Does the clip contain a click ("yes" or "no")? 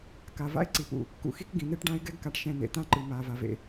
yes